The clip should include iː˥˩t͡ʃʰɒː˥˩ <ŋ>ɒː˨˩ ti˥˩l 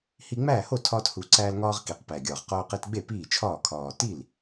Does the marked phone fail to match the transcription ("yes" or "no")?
yes